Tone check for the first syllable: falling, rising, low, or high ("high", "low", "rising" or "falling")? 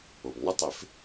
low